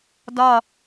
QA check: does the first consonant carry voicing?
yes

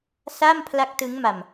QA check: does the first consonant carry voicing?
no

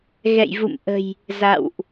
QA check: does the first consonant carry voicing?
yes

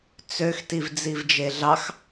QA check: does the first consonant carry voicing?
no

